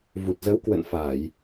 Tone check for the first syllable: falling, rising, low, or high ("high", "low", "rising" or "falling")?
low